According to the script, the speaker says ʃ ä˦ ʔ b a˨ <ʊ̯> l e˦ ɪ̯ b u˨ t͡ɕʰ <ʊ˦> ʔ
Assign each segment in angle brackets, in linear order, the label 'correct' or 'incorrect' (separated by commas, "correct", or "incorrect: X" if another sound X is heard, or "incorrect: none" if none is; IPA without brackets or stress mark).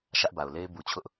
correct, correct